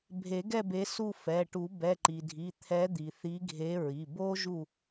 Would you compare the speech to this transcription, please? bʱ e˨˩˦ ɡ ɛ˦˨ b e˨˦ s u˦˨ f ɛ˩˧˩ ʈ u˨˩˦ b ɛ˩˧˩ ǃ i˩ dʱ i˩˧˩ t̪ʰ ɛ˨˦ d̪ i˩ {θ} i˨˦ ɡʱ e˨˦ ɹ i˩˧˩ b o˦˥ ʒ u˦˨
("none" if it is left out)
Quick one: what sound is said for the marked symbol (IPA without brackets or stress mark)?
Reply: θ